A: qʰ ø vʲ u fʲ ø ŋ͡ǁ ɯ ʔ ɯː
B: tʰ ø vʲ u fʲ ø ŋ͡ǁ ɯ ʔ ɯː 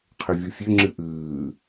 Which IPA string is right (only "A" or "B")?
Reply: A